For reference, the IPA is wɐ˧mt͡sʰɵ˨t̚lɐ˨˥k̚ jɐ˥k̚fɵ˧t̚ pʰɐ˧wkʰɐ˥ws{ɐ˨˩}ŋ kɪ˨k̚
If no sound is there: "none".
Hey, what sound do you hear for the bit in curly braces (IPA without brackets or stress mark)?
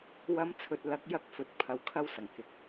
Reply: ɐ˨˩